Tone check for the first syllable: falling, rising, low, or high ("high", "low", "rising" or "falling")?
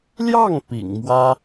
falling